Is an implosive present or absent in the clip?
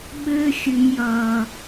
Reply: present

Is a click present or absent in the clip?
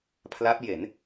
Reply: absent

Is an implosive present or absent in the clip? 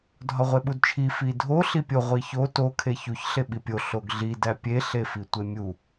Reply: present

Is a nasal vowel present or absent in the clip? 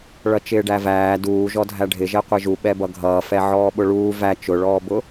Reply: absent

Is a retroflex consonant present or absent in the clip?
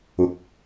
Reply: absent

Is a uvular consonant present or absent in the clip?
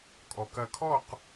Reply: present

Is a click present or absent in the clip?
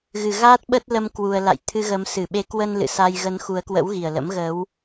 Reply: absent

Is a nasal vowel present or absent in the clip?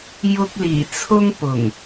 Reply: absent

